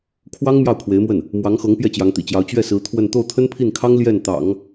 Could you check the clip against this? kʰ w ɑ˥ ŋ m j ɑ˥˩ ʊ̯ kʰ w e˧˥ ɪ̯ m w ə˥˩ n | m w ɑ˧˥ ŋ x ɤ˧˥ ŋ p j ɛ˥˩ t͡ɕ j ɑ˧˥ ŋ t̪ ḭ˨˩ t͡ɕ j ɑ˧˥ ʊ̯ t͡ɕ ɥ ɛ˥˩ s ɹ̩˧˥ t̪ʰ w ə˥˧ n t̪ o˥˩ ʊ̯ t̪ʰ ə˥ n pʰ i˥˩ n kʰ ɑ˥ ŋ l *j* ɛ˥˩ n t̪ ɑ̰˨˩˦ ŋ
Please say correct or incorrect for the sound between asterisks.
correct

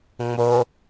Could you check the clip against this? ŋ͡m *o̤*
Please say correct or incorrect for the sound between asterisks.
incorrect: o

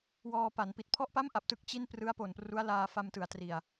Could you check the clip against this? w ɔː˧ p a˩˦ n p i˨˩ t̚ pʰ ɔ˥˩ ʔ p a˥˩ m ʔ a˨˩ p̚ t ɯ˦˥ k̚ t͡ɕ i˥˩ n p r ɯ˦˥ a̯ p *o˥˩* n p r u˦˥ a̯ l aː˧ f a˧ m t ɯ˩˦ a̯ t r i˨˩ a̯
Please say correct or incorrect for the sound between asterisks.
incorrect: o˨˩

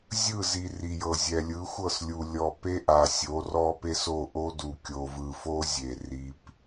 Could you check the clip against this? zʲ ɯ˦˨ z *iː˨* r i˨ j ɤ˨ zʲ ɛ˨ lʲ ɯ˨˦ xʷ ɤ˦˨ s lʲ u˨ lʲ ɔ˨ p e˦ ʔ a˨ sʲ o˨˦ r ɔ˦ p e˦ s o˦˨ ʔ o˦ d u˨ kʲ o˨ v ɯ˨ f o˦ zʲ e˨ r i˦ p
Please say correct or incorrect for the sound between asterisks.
incorrect: i˨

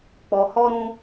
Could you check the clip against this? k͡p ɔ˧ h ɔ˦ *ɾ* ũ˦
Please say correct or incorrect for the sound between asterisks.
correct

